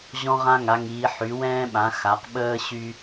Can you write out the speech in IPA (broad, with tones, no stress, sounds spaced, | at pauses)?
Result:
ʑ ɔ̃˦ ʁ ã˦ ŋ a˩˧ ŋ iː˩˧ ħ y˩˧ w ɛ̃ː˦ ɓ ã˩˧ x a˩˧ q ɓ əː˦ ɕ y˦